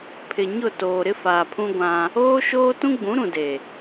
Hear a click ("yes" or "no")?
no